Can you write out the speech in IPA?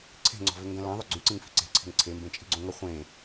ǀʰ e̤ ŋ͡ǀ ɔ̤ v ʏ ŋ ɡ ɐ̃ l ã ðˤ ʏ ɡ͡ǀ y ǀ ĩ ŋ f i̤ ǀ e̤ ǀʰ e̤ ŋ ǀʰ e m b ẽ t͡ʃʼ i̤ ɡ͡ǀ õ ŋ ɐ χʷ ẽ

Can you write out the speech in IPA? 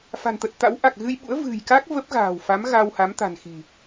f a̤˨˩ n t̪ ə˨˩ t̚ t̪ a̰˧˥ w ʔ a˨˩ k̚ ɣ ɨ˧ j ɓ ṵ˧˥ ə̯ v ɨ̤˨˩ j k a˦˥ k̚ v ə˦˥ p̚ ɣ a̤ː˨˩ w f a˨˦ m ɣ a˧ w h a˨˦ m t̪ a̤˨˩ n x i̤˨˩

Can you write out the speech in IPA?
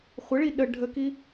χʷ ə ɭ i ɗ ə ɖʱ ə k i

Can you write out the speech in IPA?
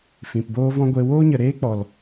f ĩ˨ p b oː˦ v ɔ̃˦ ɡʷ e˧ w oː˦ ɲ ə˨ ɾ eː˦ k͡p ɔ˨ l

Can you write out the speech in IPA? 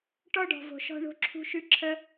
ʈ ɔ˦ ɖ ɔ̤˨ v o̤˨ ʃ ɔ̤˧ ɳ o̤˧ ǁʰ ṳ˧ ʃ ʉ˧ ǁʰ ə˧

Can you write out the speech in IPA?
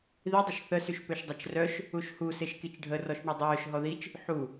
ð i dˤ ə ʃ θ ə s y ʃ p ø ʃ dˤ a t͡ʃ r œ ʃ | u ʃ h u s e ʃ k i t͡ʃ ɖʱ ə r ɔ ʃ ɳ u dˤ œː ʃ ɦ ɔ ð i t͡ʃ | ħ u

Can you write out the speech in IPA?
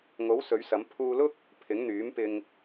ŋ o˨˥ w s ɵ˨˥ ɥ s ɐ˨˥ m pʰ uː˧ l ʊ˥ k̚ | pʰ ɪ˨˥ ŋ n̪ yː˨˥ m p ɪ˧ ŋ

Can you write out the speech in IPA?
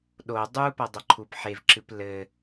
ɗ o dˤ u p ɐ dˤ ɐ ǃʰ u p ħ e v ǁ ɨ p l ɘ

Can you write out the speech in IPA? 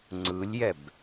ŋ͡ǀ ɯ lʲ j ɛ b

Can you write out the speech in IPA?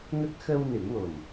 ŋ ə˦˥ k̚ x ə˧ w n ɨ˨˩˦ ŋ w o˨˩ m

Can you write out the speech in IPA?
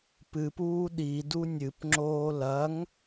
p ɨ p uː ɗ i d u nʲ ɨ p ŋ͡ǁ oː l ɐ ŋ

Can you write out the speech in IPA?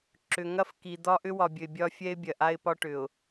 ǁ ʏ˨ ŋ ɐ˦ f k i˨ d̪ ɒ˦ ʔ ʏ˦ w ɒ˨ bʲ ɵ˨ ɪ̯ bʲ ɒ˦ fʲ ɛ˦ ɪ̯ bʲ ɐ˨ ʔ a˦ ɪ̯ p ɒ˦ ʈ ʏ˨ ʊ̯

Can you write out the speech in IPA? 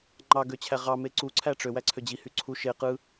ŋ͡ǃ ɑ ɡ ø t͡ɕʰ æ ʁ ɑ m e ǀ u ǀʰ æ ʈ͡ʂ ø w æ ǀʰ ø d͡ʑ i h y ǀʰ u ʃ e q ɯ

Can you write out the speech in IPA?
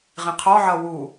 ʁ ĩ qʰ ɔ ʕ ʌ w u

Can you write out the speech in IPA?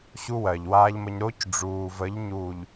ɕ u˦ w ɜ˨ ʎ w aː˦ ʎ m ə˦ ɲ ɾ o˦ c ɖ͡ʐ uː˨ v ə˨˦ ʎ ɲ u˨ ʎ

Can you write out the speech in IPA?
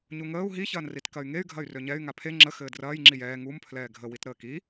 ɲ u ŋ əː u̯ ɦ i ç ɐː n r i t k ɐ y̯ ŋ e y̯ ɡʱ ɐ y̯ r ø ɲ ɛ y̯ ŋ a pʰ e ŋ͡ǁ ə x ɘː d r ɐː j ŋ͡ǁ i j ɛː ŋ u m pʰ l ɛː ɡʱ ə w i t ɾ əː k i

